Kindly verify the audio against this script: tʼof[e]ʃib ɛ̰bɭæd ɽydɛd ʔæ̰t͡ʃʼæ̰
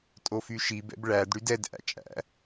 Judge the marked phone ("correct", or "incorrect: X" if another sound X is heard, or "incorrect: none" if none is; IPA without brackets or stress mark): incorrect: y